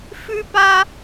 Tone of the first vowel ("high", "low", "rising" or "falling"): high